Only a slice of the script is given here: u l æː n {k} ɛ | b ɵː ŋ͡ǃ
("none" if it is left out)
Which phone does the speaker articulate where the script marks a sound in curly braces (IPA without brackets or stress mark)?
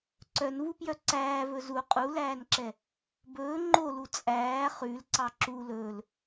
ǁ